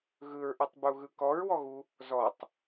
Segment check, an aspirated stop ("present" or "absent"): absent